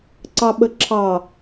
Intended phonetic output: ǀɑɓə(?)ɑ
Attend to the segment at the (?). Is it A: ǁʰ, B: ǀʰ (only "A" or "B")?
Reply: A